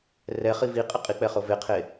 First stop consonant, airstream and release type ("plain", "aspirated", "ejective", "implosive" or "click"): ejective